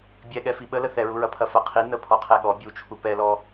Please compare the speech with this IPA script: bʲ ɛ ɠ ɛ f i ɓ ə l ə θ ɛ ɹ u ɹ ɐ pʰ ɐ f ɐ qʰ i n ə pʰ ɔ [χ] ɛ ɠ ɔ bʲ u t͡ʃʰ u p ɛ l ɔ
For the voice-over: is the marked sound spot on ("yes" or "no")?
no